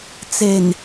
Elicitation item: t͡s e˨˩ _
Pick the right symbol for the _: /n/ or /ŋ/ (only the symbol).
n